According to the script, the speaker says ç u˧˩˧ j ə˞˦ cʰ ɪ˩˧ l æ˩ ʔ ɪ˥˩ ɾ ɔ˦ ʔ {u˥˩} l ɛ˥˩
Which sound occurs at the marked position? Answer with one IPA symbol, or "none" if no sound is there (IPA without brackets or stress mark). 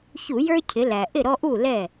u˥˩